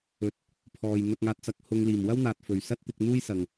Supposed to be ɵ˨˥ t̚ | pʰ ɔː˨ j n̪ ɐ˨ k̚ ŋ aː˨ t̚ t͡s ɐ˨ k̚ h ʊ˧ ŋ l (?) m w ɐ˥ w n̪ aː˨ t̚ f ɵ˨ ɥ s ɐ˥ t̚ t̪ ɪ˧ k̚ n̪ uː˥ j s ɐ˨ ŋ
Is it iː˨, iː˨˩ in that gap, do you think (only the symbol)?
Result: iː˨˩